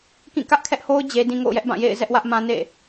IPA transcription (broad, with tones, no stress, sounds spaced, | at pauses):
k ĩ˦˨ k ä˦ ʔ kʰ ɛ˦ ʔ h o˦ ʊ̯ d͡ʑ e˦ d ĩ˦ ŋ o̰˦˨ ʊ̯ j ɛ˦ ʔ b ã˦˨ j ḛ˦˨ ɪ̯ z ɛ˦ ʔ w ä˦ ʔ m ã˦ n ḛ˦˨